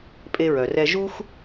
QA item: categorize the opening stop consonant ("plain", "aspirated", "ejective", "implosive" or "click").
ejective